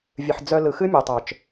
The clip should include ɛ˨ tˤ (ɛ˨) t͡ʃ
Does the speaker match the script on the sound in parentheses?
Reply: no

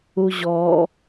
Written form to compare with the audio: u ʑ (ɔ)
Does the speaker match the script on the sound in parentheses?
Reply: yes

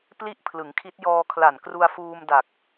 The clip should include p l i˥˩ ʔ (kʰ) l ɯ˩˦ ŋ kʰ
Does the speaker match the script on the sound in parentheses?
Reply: no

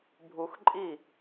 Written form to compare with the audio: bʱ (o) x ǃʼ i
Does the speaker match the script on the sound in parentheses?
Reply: no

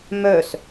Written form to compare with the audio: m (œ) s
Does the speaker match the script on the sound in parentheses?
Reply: yes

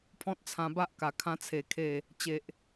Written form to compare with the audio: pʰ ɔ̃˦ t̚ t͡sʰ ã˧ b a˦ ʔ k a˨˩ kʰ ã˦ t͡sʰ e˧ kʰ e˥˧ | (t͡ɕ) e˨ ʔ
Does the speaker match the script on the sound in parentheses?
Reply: yes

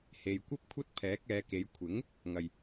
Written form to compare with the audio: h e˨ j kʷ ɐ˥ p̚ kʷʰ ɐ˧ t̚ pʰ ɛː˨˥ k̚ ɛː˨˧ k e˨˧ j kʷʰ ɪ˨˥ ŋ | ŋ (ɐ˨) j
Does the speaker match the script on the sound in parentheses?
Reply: yes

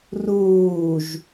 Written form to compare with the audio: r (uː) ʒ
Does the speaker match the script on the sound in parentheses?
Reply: yes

